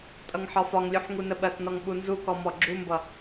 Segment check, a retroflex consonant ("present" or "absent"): absent